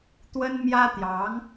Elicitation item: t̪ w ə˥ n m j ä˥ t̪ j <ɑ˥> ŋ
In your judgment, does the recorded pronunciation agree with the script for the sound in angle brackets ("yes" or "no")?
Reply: no